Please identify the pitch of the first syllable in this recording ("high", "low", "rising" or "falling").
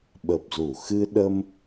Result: low